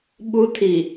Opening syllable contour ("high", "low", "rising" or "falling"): high